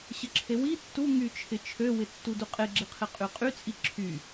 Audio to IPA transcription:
ɕ ə ǁʰ e w i tː u ŋ y t͡ʃʰ ɪ t͡ʃʰ ø w ɪ tː u d u qʼ e ɡ͡ǁ ɪ qʰ ɪ qʼ y qʼ y t͡sʼ i ǁʰ y

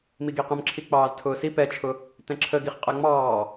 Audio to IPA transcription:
m i ɡ i q ə̃ m ǁʰ i k͡p ɑː z tʰ ʊː s i p ɛ t͡ʃʰ ʊ | t ɛ̃ ǁʰ ə ɡ i χ qʼ æ ŋ͡m ɑː

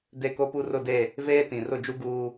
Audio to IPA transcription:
d e˦˨ k o˦ p u˦ r ʊ˦˨ d e˦˨ | v eː˦ t ĩ˨ r ʊ˦˨ d͡ʒ u˦ ɡ uː˦

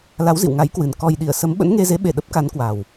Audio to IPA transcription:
l a˨˦ w z ḭ˧˨ w ŋ a˨˦ j k w ɨ˨˩ n k ɔ˨˩ j ɗ i˧˩ ə̯ s ə˨˦ m ɓ ə̰˧˥ n ŋ e˧ z e˨˦ ɓ e˧˩ ɗ ə˦˥ p̚ k a˨˦ n k w a˨˩ w

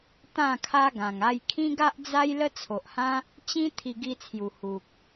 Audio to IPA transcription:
t̪ ã˥˧ kʰ a˦ ɡ ã˨˩ ŋ a˧ j kʰ ĩ˦ ɡ a˦ ʔ d͡z a˦ j l ə˦ t͡sʰ o˨ ʔ h ã˦ | t͡ɕ ĩ˦ t̪ʰ i˧ ɡ i˧ t͡sʰ j u˨˩ h u˨ k̚

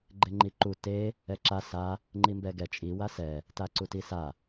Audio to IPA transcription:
ɡ͡ǃ e ŋ͡ǃ i ǃ u t e | ɛ ǁ a s a | ŋ͡ǃ i m b ɛ ɡ ɛ t͡ʃʼ i w a s ɛ | t a ǀ u t i s a

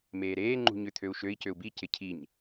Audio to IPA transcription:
m eː ɾ eː ŋ͡ǃ ṳ ɲ ʏ t̪ʰ ø u̯ ʃ ø i̯ c ø u̯ b i c ɪ cʰ i ɲ

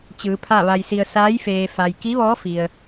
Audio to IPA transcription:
t͡ɕ ɯː˩˧ pʰ a˥˨ ʋ a˧ j s i˧ ə̯ s aː˧˥ j f eː˩ f a˩ j k i˧˥ ʋ ɔː˧˥ f i˩ ə̯

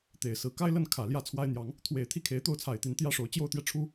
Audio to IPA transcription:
t̪ e˨˩ ɪ̯ s ɹ̩˨˦ k a˦ ɪ̯ l ə˥˨ n kʰ ä˨˩ l j ä˥˨ t͡sʰ w a˦ ɪ̯ n̪ j ɑ˨˦ ŋ | t̪ʰ w e˨˩ ɪ̯ t̪ʰ i˦ kʰ e˨˦ ɪ̯ t̪ o˥˨ ʊ̯ t͡sʰ a˨˩ ɪ̯ t̪ i˨˦ n t̪ j ä˦ ʂ o˨˦ ʊ̯ t͡ɕ j o˥˨ ʊ̯ t̪ j ɛ˥˨ ʈ͡ʂʰ u˦

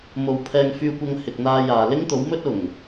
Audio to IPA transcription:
m o˨ w pʰ ɛː˧ ŋ f yː˧ kʷ ɐ˧ ŋ h ɪ˨ k̚ n̪ aː˧ j aː˨ l ɪ˥ ŋ t̪ o˨˥ w m ɵ˥ t̚ ʊ˨˩ ŋ

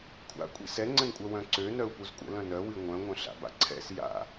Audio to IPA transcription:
kʷʰ a̰ kʷʼ ḭ s ɛ ŋ͡ǀ ə̃ n kʷʼ œ w œ̃ ǀ ø n œ u̯ p u z kʷʼ ə̰ l œ̃ n œ w i ŋʷ œ̃ ŋʷ œ̃ ɬ a̰ b a̰ ǀʰ ɛ̰ s j a̰

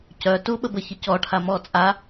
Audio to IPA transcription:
c œ t u ɓ ə b ə ç ə c ɔ ʈʰ a m ɔ t͡sʼ a

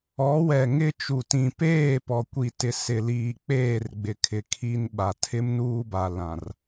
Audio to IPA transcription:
ɔ˨˦ w ɛ˨ ŋ ɪ˦ t͡ʃ u˨ t ĩ˨ p eː˦˨ p ɔ˨ kʷ i˨ t ɪ˨ s ɪ˨ l iː˨ k͡p eː˦˨ r ɡ͡b ɪ˨ kʰ ɪ˨ kʰ i˦ n ɓ a˨ tʰ ɪ˦ m n uː˦ b a˨ l ã˨ r

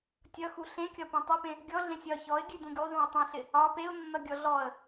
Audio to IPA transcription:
tʲ ʌ x u ɬ ẽ kʲ ɒ p ũ tˤ ʉ p ẽ | ɡʲ ɔ ɮ ẽ sʲ ɒ ç ɔ ɪ̯ ɡʲ ʉ d ũ ɡ ʉ ðˤ ũ ɪ̯ tˤ ũ ɬ ɪ | ɒ p e ʊ̯ nː ʌ ɡʲ ɔ ɮ ɔ ə̯

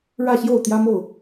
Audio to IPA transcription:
ɻ ä˥˨ ɕ j o˥˨ ʊ̯ t̪ j ä˦ m o˥˨ ʊ̯

